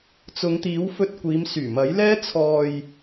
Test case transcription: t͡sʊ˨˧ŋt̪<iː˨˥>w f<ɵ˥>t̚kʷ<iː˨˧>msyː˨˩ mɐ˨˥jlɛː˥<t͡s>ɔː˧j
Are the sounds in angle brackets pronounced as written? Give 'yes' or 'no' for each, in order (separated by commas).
yes, no, yes, no